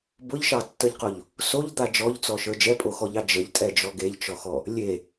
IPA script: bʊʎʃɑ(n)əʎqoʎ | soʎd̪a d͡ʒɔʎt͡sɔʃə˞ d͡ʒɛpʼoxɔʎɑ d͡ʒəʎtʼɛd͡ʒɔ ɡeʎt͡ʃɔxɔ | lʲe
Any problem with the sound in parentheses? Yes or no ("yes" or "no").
yes